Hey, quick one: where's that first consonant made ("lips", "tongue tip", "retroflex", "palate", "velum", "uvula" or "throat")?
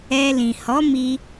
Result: tongue tip